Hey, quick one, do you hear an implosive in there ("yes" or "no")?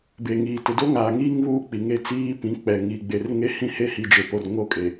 no